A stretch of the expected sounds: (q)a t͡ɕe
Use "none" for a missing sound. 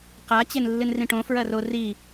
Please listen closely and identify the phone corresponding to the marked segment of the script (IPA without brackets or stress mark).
q